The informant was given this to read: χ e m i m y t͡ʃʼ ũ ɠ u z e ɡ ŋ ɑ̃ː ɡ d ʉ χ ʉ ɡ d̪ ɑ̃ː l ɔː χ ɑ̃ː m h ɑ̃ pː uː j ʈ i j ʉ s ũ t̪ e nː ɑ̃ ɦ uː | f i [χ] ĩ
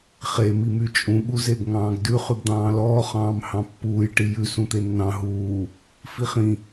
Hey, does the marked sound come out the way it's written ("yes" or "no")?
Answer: yes